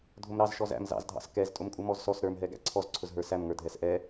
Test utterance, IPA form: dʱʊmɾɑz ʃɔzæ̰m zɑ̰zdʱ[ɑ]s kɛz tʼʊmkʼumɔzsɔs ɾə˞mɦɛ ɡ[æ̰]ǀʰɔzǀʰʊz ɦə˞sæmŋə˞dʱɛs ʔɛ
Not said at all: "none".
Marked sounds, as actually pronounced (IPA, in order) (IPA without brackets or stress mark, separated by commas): ɑ̰, æ̰